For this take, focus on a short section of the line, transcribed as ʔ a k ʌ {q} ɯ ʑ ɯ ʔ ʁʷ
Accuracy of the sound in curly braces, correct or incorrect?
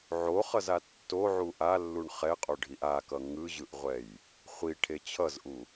incorrect